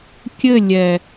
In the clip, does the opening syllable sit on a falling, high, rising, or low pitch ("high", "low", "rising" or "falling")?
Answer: falling